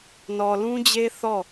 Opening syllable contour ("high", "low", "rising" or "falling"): low